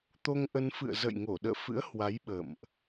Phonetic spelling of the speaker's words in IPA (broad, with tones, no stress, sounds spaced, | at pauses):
t̪ o˧ ŋ ʔ ə˧ n f ɨ̰˧˨ ə̯ z ə̰˧˨ j ŋ o˧˩ ɗ ə̰ː˧˨ f ɨ̰˧˥ ə̯ h w a˨˦ j ɓ ə̰ː˧˨ m ʔ